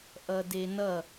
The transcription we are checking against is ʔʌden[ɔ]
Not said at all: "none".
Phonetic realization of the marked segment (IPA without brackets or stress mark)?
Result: ʌ